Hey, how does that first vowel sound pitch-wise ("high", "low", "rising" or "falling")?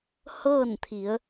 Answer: falling